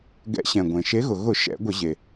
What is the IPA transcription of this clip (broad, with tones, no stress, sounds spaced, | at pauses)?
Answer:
ɡ ɛ̰˨˦ ɕ ɛ̃˩ ɡʷ ẽ˩ ʃ e˨˦ ɣ ʊ˩ ɣ ʊ˧˩˧ ʃ ɛ̰˧˩˧ ɡʷ ə˧˩˧ ʑ e˩